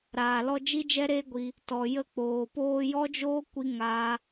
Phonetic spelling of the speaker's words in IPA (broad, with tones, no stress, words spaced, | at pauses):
ɾaː˨lɔ˧ d͡ʒi˦d͡ʒɛ˦ɾeː˦ɡʷi˧ | tɔ˨jə˧k͡poː˨ poː˧jɔ˦d͡ʒoː˦ kʷi˦ŋaː˦